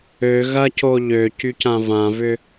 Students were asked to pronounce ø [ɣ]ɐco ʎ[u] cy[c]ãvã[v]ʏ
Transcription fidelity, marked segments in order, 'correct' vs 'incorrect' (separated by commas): correct, incorrect, correct, correct